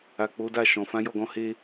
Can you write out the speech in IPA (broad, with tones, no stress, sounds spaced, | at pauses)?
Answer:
a˨ k͡p o˨˦ d a˦˨ ʃ ɔ̃˨ f ã˨˦ j ɔ˦˨ ɡ ɔ̃˧ h e˧